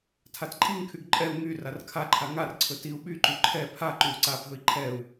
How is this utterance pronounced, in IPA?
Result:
tʰatǃʼiŋkʰyɡ ǃʼɛu̯ ŋy rarkʰaǃʰa ŋarǀʰɵ tiu̯ ɓyǃy ǃʰɛ pʰa ǃyu̯ǀabʱɵi̯ ǃʰɛu̯

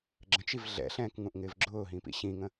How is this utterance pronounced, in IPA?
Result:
ɡ͡ǁə̃t͡ʃiv ɮɛ̰ɬɛ̃ːkŋũʔŋɪːv ɡ͡ǁʊːɦĩpḭ ɕĩŋə̃

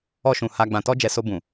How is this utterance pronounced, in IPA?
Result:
ɔ˧ʃũ˨ ha˧ ɡ͡bã˨tɔ˧d͡ʒɛ˨ so˧bũ˨

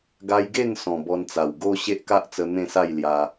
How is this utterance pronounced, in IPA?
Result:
ɡa˧jɡe˥˧n sɔ̃˨˩ bɔ˧nt͡sa˨˩w ɡo˦ ɕe˦ʔka˦ʔt͡sə˧ n̪ẽ˥˧sa˥˧jlja˧

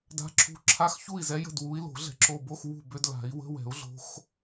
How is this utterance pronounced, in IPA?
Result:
da̤˨˦ǁʰṳ˨˦ ǁʰa˧˥˧xçu˥˩i̯zɛ˨˦ jə̤˥˩dwu˨˦i̯lo̤˨˩˦ ɮɛ̤˧˩ǁo˧˩bo˧˥˧x wṳ˥˩bʏ˧˥˧dla̤˨˩˦i̯ wə̤˧˥˧wɛ̤˨˩˦u̯ ɮo̤˨˦x

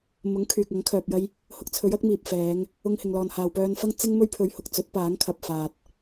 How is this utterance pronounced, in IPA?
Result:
mʊ˨˥ŋ kʰyː˨k̚ ɐ˨˥ŋ kʰœː˧p̚jɐ˥j | hʊ˧k̚t͡sʰɵ˨˥ɥ ɐ˥k̚miː˨p̚fɛː˨˧ŋ | ʊ˧ŋhɪ˨ŋlɔː˨n haː˨wpœː˧nfɐ˥ŋ t͡sɪ˥ŋ mɵ˥ɥpʰɵ˨˧ɥ hʊ˨k̚ t͡sɵ˨˥t̚paː˨˥ŋ kʰɐ˨p̚ faː˨t̚

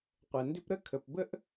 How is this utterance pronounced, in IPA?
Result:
qʷɛ˩ndʏ˥p ɾə˥ kʰə˩pbə˥ʔ

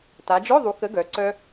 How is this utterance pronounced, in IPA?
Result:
ta˩˧d͡ʒœ˧˥˧ðˤu˩˧ kə˨˥ɡœ˩˧ ǀœ˧

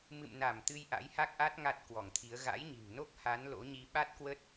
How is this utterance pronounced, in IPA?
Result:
mɨ̰˧˨mna˧˩m t̪ɨ˧jʔa̰˧˥jha˦˥k̚ʔa˦˥t̚ ŋa˦˥t̚ kwɔ˧˩ŋt̪ʰi˨˦ə̯ ɣa̰˧˥jɲi̤˨˩ŋno˦˥k̚ ha˨˦n lo̰˧˥ɲi˧ ɓa˦˥t̚ kwə˦˥t̚

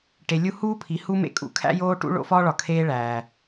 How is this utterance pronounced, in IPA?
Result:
ʈe˨lʲu˦ huː˦pʰi˨hu˦ mḛ˦ kʼṵ˨kʰæ̰˦joː˦ ʈṵ˦ɭo̰˦fɒː˦ɭɒ˨ kʰeː˦ɭæː˨

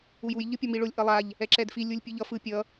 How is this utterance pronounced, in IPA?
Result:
ujuj ʎɯpʲʌmiɭolʲ ʔʌlˠaʎ | ɛǁɛdfi lʲulʲpʲɯʎʌ fɯ pʲʌ

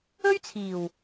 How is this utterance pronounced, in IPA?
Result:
ɵ˥ɥt͡sʰiː˨˩w

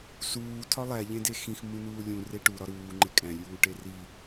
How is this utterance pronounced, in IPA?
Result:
suː tʰɒlˠæ ʎẽdexĩx mũnuːlʲũ reʈu ɾɒɾuː ŋ͡ǃekʼæ̃ lʲuːʈeri

